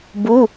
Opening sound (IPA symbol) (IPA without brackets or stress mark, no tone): b